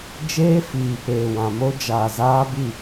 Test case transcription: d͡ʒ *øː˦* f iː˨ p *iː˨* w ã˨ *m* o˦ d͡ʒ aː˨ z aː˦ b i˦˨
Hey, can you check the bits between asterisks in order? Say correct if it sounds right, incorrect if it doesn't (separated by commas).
incorrect, incorrect, correct